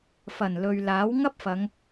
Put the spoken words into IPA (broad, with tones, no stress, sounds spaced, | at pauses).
f ɐ˨˩ n l ɵ˨ ɥ l aː˨˥ w ŋ ɐ˥ p̚ f ɐ˨˧ ŋ